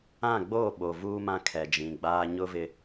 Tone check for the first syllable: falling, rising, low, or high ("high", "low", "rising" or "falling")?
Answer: falling